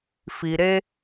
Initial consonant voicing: voiceless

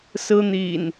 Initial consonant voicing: voiceless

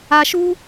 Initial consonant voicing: voiceless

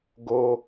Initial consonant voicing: voiced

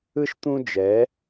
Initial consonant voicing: voiceless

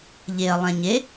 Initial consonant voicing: voiced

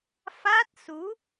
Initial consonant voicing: voiceless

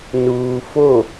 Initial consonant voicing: voiced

